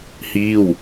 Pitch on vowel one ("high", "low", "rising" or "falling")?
falling